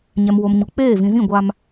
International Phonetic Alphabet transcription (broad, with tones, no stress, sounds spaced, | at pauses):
ɲ ɛ˨ m w o˨ m ɲ u˨ k͡p eː˦˨ v ĩ˨ z ĩ˦˨ ɡʷ a˦ m